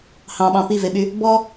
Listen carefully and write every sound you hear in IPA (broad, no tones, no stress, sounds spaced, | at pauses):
h ɑ̃ ɓ ɑ̃ p i v e ɓ y | b ɔ